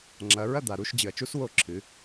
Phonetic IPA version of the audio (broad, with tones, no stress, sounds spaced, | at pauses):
ŋ͡ǁ ɐ˨˦ ɹ ɐ˥˨ d̪ a˨ ɾ u˥˨ ʃ d͡ʑ ɨ˨ ɐ̯ t͡ʃ u˥ s w o˥˨ ǁʰ ɨ˨˦